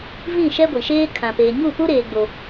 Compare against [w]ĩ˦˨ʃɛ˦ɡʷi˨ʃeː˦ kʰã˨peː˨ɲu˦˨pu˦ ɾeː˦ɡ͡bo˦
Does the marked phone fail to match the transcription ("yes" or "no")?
yes